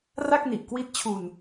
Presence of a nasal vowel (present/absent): absent